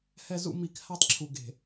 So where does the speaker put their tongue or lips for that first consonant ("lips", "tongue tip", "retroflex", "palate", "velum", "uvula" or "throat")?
throat